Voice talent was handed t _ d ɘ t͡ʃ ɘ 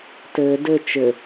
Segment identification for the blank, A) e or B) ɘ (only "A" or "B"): B